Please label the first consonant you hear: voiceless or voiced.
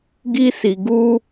voiced